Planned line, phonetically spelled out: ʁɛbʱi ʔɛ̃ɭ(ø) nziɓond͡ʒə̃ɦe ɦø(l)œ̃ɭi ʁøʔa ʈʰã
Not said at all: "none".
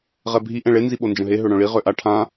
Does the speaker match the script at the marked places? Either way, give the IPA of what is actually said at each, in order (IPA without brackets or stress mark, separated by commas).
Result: e, ɽ